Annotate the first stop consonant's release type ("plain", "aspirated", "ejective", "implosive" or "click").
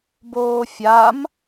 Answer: plain